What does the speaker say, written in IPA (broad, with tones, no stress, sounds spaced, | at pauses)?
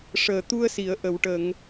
ʂ əː˨˩ t̪ u˧ ə̯ s i˨˩˨ ə̯ ʔ ə˨˩˨ w ʈ ə˨˩˨ ŋ